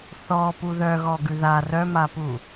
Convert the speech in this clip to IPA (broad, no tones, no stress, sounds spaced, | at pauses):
θ ɔ p u ð œ ɣ ɔ ɡ ʉ ð a r œ m a p u